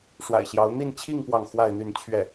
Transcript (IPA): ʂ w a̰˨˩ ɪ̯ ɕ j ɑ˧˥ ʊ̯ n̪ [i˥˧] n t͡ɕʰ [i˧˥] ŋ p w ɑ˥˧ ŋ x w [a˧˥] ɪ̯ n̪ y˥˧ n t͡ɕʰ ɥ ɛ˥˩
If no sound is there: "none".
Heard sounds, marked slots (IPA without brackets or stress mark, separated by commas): i˥˧, i˥˧, a˥˧